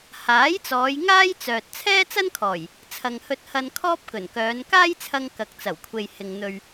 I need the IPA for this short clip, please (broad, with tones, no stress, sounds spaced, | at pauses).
h aː˨˥ j t͡s ɔː˨˧ j ŋ aː˥ j t͡s œː˨ t̚ t͡sʰ ɛː˥ t͡s ɐ˥ n kʰ ɔː˨˩ j | t͡sʰ ɐ˨ ŋ h ɵ˧ t̚ h ɐ˧ n kʰ ɔː˥ p̚ k ɵ˨˩ n k œː˨˧ n k aː˥ j t͡sʰ ɐ˧ ŋ k ɐ˨ k̚ t͡s ɐ˨˩ w kʷʰ e˨ j h ɪ˨ ŋ n̪ ɵ˨ ɥ